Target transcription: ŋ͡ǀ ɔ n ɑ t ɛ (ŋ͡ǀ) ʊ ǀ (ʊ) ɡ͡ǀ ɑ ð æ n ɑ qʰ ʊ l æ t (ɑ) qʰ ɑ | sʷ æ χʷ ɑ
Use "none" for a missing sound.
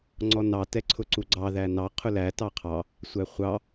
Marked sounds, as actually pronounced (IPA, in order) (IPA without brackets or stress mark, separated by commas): ǀʰ, u, ɑ